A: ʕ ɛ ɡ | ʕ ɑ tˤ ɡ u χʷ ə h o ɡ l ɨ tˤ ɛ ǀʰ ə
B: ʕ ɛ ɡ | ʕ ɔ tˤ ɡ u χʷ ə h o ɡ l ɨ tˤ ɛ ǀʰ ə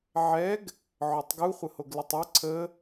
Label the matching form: B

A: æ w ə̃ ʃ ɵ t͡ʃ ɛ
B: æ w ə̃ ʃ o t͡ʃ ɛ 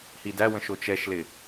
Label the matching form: B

